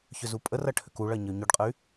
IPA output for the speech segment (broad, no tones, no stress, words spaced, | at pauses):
çʏzupʼərɐ ʈʰʏkuɭɐ ɲəy̯ɲɵɖqʼəy̯